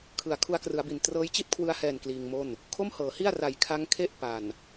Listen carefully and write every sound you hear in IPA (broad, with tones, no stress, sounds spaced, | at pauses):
kʰ ɯ˩˦ a̯ kʰ u˦˥ a̯ k r ɯ˩˦ a̯ b i˨˩ n t r ɤː˦˥ j t͡ɕ i˥˩ t̚ kʰ w ɯ˧ a̯ h ɛː˨˩ n k l iː˧ ŋ m o˥˩ n | kʰ o˥˩ m h ɤː˩˦ h i˥˩ a̯ r a˨˩ j kʰ a˦˥ ŋ kʰ e˥˩ ʔ p a˨˩ n